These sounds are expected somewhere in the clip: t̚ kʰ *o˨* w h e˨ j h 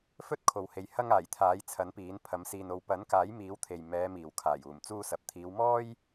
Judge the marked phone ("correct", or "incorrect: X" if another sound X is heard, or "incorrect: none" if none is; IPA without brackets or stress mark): correct